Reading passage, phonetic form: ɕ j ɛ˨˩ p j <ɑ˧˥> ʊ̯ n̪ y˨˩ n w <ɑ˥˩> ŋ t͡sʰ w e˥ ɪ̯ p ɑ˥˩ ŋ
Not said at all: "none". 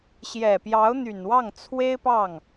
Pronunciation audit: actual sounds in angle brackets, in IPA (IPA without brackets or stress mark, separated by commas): ɑ˧˥, ɑ˥˩